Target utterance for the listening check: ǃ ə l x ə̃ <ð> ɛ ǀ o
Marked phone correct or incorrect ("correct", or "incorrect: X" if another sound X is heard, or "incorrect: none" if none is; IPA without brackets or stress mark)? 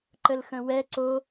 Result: incorrect: w